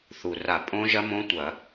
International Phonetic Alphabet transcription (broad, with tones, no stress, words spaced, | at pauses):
θu˨˩ra˧˩˧ pʼõ˦˥ʒɐ˦˥ mõ˦˥tʷɐ˧˩˧